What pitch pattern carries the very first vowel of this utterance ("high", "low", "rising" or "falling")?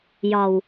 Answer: low